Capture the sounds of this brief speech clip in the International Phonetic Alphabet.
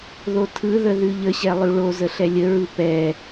ð o tʰ ɯ ð ə ð ʉ ʎ ə ɕ ɛ lˠ ʉ ɭ o z ə ɬ ɛ lʲ ə ɹ ɯ p ɛ

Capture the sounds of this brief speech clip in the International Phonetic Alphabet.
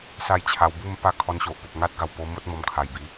s a˥˧ j t͡ɕʰ a˧ w b u˥˧ m p a˥˧ kʰ ɔ˧ n ɕ o˨ ʔ p o˨ p̚ ŋ a˦ t̚ ɡ a˨˩ w p o˧ m o˦ t̚ m ɔ˧ m kʰ a˨˩ j b i˨˦

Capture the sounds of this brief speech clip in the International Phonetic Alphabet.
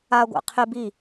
a ɡʷ a̰ qʰ ɪ b i

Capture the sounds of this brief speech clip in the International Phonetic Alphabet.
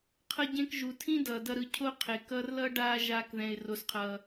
qʰ ʌ˦ ɟ ẽ˦ k ʒ u˨ tʰ ĩ˦ d ʌː˨ d ʌ˧ ɾ ɯ˧ cʰ o˦ qʰ e˨ k ʌː˧ r l ʌ˦ ɖ aː˧ ʒ aː˧ k ð ɛ̃˨ ɪ̯ r o˨ s qʰ ʌː˨

